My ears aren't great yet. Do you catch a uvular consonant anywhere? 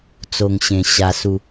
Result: no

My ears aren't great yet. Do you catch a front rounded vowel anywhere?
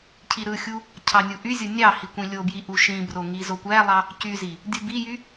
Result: yes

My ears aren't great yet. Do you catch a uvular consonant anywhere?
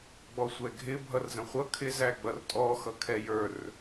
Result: yes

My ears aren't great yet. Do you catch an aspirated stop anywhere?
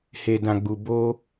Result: no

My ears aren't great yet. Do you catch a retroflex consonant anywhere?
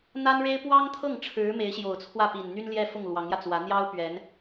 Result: yes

